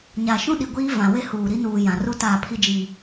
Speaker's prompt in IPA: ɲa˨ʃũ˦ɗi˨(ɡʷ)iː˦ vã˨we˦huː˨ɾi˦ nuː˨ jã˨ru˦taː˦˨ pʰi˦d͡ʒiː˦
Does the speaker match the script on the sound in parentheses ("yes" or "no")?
yes